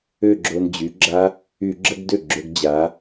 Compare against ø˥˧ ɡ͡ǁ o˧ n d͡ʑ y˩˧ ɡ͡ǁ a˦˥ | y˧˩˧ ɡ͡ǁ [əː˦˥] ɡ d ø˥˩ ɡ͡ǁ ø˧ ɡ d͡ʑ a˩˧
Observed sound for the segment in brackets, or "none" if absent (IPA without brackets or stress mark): ə˦˥